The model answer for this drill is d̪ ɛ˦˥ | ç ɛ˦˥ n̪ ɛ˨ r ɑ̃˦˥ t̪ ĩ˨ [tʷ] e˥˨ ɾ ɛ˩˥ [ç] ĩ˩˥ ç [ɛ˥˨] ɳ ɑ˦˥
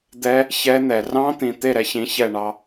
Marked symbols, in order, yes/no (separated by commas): no, yes, yes